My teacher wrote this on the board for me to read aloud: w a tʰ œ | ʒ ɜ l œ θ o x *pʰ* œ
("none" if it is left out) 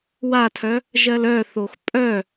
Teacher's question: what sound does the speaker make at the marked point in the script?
pʼ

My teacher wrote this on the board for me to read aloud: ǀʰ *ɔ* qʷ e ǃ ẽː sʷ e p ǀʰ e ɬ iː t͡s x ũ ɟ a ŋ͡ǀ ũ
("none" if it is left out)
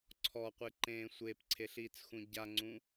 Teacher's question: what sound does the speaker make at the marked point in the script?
ɔ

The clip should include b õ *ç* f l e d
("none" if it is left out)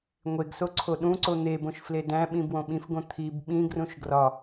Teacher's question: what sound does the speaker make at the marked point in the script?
ʃ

